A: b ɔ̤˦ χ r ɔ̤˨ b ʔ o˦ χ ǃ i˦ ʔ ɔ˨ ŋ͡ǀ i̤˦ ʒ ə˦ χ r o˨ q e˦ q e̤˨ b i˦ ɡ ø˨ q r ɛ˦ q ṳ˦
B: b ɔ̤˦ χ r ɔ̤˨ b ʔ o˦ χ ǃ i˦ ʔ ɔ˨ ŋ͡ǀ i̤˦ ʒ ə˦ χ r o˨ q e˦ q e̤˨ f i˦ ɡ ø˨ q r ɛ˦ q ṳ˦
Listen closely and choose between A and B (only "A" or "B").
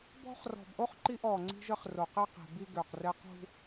A